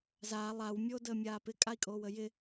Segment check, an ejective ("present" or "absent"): present